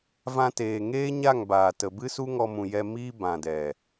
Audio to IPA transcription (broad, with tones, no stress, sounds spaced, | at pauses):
v ã˧ t eː˨ ŋ eː˦ ɲ a˦˨ ŋ b aː˨ t ə˨ b ɨ˦ s u˦ ŋ ɔ˧ m ũ˨ j ɛ˧ m iː˦ b ã˨ d ɛ˨